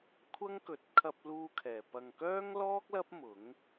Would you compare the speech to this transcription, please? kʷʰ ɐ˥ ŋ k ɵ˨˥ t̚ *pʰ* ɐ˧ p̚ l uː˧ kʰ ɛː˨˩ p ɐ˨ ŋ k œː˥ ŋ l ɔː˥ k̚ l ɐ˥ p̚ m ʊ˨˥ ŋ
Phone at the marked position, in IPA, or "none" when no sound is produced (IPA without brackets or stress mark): kʰ